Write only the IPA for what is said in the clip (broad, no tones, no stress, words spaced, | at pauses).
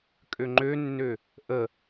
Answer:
kʼøŋ͡ǃønːø | ʔə